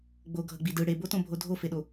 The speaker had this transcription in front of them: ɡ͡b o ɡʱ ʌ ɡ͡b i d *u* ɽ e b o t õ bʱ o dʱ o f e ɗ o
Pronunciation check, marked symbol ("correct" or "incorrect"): incorrect